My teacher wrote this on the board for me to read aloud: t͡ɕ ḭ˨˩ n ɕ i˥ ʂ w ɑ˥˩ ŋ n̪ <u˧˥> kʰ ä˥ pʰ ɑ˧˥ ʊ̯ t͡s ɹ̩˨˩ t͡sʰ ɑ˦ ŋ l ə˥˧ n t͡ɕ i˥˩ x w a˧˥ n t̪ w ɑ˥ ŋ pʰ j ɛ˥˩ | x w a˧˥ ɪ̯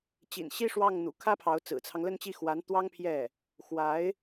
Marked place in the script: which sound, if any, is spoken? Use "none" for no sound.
ṵ˨˩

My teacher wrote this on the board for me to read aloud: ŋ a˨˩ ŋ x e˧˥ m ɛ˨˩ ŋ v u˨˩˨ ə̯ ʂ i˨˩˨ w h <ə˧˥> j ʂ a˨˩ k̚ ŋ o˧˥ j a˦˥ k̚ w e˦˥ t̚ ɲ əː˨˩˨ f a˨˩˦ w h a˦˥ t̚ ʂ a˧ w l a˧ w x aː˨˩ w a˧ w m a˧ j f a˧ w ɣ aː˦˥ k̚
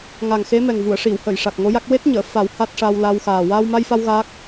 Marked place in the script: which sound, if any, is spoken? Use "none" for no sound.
ə˨˩˨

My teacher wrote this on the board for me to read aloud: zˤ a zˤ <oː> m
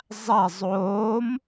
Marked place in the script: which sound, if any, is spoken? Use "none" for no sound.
oː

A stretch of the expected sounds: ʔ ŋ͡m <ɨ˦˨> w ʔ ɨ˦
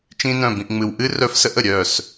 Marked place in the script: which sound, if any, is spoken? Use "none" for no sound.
ɨ˨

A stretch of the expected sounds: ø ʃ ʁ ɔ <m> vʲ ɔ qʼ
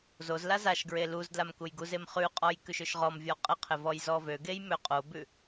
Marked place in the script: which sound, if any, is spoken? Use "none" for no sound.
m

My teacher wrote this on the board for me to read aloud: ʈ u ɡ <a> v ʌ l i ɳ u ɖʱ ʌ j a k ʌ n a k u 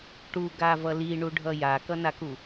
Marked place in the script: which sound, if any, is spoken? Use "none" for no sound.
a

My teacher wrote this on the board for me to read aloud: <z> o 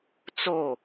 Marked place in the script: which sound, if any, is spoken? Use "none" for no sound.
t͡s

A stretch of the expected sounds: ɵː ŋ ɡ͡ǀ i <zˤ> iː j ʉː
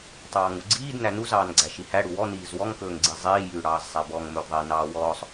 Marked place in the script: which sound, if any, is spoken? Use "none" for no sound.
zˤ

